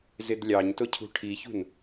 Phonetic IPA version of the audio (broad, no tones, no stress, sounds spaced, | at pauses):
z ɪ d lʲ ɑ ɲ t ʊ cʰ ṳ ʈʰ i ç ṳ n